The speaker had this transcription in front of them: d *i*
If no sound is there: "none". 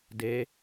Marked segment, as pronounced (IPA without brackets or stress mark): e